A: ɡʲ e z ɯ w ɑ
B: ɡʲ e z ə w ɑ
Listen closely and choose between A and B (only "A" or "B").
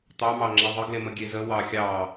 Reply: B